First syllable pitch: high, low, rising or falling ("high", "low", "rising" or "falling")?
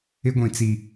high